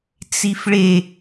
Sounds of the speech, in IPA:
t͡s i f ɭ e

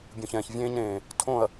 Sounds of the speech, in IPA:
bʲ ũ˨ ç ɛ̃ː˨ ç vʲ ẽː˦ ɲ ɾ ẽː˨ | tʰ õ˦˨ ɐ̯

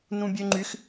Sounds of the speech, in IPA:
n ũ bʲ ø ŋ͡ǃ y x

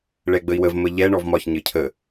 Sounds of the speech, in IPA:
ɭ ɛ ɡ͡b ə i̯ w ə v m ə ʎ ɛ ɳ ɔ v m ɒ ç ɲ ɘ cʰ ə

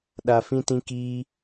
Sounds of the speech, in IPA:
ɗ a˦ f ĩ˦ t ĩ˦ k iː˦

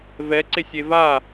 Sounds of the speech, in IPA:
v ɛ ǀ e sʲ e v a

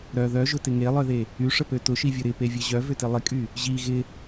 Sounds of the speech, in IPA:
ɾ œ ð œ ʒ ʊ t ɪ ŋ e lˠ œ ð e | y ʂ ə p ø t ʊ ʃ i vʲ ʊ ɾ ɪ p e vʲ ə ʑ œ v ʏ t ɪ lˠ ɪ kʼ y | ʑ i ɣ ɪ

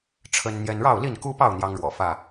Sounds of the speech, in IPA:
ʈ͡ʂʰ ə˦ n n̪ j ɛ˦ n ɻ ɑ˥˨ ʊ̯ l i˥˨ n k u˦ p ɑ˥˨ ʊ̯ n̪ j ɑ˦ ŋ ɻ w ɔ̰˨˩ f ä˥˨

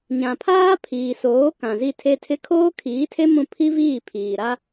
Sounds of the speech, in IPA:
ɲ ã˨ pʰ aː˦ pʰ iː˨ s oː˨˦ k ã˨ z i˦˨ tʰ e˦ tʰ ɪ˦ kʰ oː˦ kʰ iː˨˦ tʰ e˦ m ũ˦ pʰ i˦ v iː˦˨ pʰ iː˨ ɾ a˦

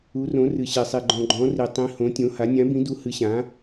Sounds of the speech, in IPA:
u˧˥ r õ˧˥ r ɨ˧ ɕ e˧ sˤ i˧ ɡ͡ǃ ɔ̃˧ ɡ͡ǃ ɔ̃˧˥ r i˧ tˤ ĩ˧˥ h õ˧˥ tʲ õ˧˥ h a˧˥ nʲ ã˧˥ b ĩ˧˥ d u˧˥ h ɨ˧˥ ɕ ã˧˥

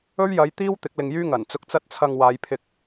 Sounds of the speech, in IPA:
ɵ˥ ɥ j ɐ˨˧ j t̪ iː˥ w t̪ ɪ˨˥ k̚ l ɪ˨ ŋ j yː˥ ŋ ɐ˨˩ n t͡s ʊ˧ k̚ t͡s ɐ˥ t̚ t͡sʰ ɐ˧ ŋ w aː˨˧ j pʰ ɪ˧ k̚

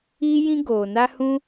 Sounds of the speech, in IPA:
iː˦ j ĩ˦ ɡ oː˨ n a˦ h ũ˦

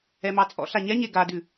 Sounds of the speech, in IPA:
ɛ m ɑ t͡sʼ ɔ̰ ɬ a ɲ ɛ ɲ e ɡ a d ʉ

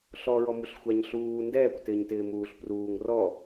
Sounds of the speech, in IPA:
ɬ ɔ ɹ ɔ m u ɬ xʷ a ɲ ɬ uː n d ɛː kʷ t ɪː ɲ t ɪː m uː ɬ p r uː ŋ r ɔ

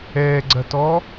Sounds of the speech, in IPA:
ɛː ɡ͡ǀ ɐ t ɔ

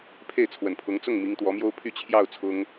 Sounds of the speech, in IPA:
pʰ e˥˩ ɪ̯ t͡sʰ w ə˨˩ n pʰ ʊ˧˥ ŋ t͡s ʊ˥˩ ŋ m i˧˥ ŋ t̪ w ɔ˧˥ m j o˥ ʊ̯ pʰ y˥˧ t͡ɕʰ j ɑ˥˩ ʊ̯ t͡sʰ ʊ˥ ŋ

